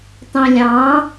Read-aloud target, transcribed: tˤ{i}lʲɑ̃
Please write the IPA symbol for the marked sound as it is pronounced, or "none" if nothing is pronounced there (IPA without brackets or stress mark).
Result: ĩ